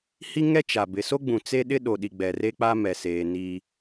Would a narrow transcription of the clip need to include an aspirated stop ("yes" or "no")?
no